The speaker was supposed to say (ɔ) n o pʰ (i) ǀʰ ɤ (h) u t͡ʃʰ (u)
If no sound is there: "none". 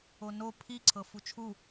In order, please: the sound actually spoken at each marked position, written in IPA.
o, i, f, u

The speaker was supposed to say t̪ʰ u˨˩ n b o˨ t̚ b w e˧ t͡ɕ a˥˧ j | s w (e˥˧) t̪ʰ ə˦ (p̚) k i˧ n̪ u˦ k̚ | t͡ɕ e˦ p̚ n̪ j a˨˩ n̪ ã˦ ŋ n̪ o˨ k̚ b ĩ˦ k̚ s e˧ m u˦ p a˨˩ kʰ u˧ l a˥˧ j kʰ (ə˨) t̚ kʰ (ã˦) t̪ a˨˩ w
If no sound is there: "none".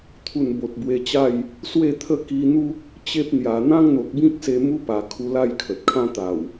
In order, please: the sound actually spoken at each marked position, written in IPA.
e˥˧, none, ə˨, ã˦

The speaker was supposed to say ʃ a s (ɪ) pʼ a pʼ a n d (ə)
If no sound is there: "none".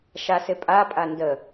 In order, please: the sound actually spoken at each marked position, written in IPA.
ɪ, ə

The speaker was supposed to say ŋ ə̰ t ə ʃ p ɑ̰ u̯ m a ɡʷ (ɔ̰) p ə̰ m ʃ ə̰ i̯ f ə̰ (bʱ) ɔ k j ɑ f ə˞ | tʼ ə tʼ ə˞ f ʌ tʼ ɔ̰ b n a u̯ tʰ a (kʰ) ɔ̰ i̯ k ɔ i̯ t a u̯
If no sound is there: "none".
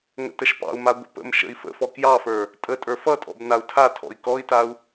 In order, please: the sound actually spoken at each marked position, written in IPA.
ə̰, f, tʰ

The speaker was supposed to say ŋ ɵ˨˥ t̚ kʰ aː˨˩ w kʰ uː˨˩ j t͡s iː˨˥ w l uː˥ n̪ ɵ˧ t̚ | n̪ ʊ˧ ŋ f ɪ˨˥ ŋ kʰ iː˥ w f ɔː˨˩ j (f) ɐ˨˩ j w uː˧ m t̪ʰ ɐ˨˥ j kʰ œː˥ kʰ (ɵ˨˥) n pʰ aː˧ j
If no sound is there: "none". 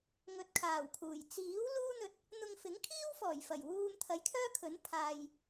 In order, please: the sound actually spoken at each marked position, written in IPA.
f, ɵ˨˥

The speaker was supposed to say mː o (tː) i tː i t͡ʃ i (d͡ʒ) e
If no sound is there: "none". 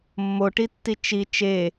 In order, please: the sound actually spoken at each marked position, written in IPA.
ʈ, t͡ʃ

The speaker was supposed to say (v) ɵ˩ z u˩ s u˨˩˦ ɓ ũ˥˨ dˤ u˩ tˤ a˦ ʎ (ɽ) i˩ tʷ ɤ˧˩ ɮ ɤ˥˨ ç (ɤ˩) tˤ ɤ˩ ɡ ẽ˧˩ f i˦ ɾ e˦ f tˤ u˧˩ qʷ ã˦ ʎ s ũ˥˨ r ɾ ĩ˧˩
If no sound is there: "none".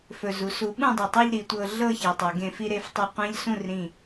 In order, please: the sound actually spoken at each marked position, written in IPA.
f, ɾ, ɤ˩

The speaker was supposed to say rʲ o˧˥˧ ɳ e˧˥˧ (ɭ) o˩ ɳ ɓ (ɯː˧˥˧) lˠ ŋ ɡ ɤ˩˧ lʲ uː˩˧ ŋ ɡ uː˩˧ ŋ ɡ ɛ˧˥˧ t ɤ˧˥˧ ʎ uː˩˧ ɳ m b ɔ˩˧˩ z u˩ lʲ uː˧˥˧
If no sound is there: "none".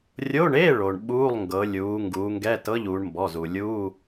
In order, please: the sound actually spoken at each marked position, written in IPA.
ɭ, uː˧˥˧

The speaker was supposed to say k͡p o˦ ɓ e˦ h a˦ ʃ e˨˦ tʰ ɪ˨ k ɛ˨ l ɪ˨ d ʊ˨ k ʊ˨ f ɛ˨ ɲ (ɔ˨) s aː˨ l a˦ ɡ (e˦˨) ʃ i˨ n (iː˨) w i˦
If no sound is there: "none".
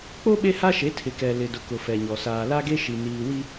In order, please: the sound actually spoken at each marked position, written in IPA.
ɔ˨, e˦, iː˨

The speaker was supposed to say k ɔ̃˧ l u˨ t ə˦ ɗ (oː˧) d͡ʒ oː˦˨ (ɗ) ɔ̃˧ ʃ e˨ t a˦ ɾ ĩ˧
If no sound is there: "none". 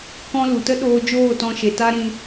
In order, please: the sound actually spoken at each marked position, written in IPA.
oː˧, t

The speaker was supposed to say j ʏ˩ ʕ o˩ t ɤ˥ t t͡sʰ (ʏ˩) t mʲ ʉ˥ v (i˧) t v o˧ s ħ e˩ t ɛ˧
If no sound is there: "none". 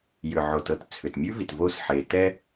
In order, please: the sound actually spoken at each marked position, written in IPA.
ʏ˩, i˩

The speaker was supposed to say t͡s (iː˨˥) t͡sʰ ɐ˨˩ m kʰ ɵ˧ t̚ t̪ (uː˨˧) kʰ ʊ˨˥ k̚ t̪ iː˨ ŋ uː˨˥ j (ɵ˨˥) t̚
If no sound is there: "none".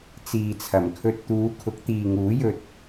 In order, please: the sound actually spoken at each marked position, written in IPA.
iː˨, uː˨˧, ɵ˧

